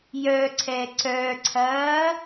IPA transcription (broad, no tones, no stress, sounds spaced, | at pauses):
j œ ǀʰ ɛ ǀ œ ǀʰ ɐː